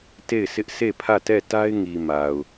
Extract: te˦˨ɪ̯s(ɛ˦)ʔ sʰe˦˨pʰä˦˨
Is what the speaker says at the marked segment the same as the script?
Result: no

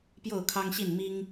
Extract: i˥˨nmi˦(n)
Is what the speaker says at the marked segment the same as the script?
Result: no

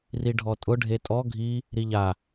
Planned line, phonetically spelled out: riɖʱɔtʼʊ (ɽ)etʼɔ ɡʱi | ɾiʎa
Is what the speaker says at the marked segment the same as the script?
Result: no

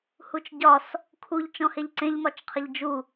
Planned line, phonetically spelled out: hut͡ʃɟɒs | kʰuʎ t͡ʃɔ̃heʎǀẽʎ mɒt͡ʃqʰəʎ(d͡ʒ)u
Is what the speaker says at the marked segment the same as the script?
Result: yes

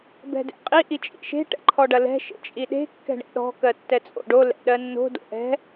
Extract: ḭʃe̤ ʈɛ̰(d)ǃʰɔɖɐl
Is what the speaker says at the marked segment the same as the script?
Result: no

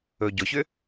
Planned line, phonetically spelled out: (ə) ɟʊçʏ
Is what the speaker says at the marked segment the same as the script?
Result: no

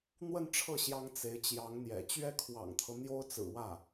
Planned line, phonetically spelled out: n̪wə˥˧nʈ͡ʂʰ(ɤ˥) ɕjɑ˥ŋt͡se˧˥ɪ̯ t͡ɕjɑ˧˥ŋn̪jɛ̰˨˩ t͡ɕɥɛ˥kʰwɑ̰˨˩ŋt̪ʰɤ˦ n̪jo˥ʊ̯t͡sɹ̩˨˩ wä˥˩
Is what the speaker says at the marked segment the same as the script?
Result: no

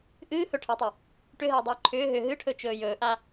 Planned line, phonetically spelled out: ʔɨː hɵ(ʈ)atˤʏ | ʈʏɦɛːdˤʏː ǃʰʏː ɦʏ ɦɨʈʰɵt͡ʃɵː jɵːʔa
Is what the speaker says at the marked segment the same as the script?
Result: no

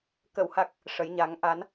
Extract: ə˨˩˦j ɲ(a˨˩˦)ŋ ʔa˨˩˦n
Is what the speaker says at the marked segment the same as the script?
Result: yes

